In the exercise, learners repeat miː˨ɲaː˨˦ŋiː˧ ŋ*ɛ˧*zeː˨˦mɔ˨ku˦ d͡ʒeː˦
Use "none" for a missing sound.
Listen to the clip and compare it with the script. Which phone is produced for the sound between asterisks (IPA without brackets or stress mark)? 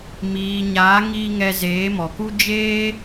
ɛ˧